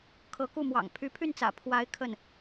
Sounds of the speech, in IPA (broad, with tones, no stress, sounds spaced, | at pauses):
kʰ ɤ˧˥ k u˥˩ m w ɑ̰˨˩ ŋ pʰ y˧˥ pʰ y˥˩ n t͡s ä̰˨˩ pʰ w a˧˥ ɪ̯ kʰ ə˥˩ n